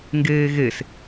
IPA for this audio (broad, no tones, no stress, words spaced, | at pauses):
ŋɡeːɣes